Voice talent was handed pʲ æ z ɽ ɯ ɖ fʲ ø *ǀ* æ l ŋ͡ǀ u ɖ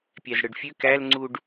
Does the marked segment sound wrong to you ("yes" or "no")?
yes